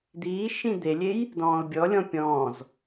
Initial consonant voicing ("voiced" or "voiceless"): voiced